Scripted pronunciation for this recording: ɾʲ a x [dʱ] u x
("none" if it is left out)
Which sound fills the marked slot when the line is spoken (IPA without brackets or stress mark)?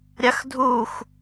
dʱ